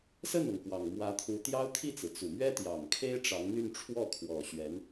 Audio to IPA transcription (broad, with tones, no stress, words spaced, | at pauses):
sə˥˩nɤ˩ŋ kwɑ˨˩ŋmwä˧˥t̪ʰu˧˥ t̪jɑ˥ʊ̯t̪ʰi˥˩t͡sɹ̩˩ t͡su˨˩mɥɛ˥t̪jɑ˨˩ŋ kʰe˥ɪ̯ ʈ͡ʂɑ˧˥ŋn̪y˥˧nʈ͡ʂʰwɔ˥˩ kʰwɔ˨˩ ɕɥɛ˧˥n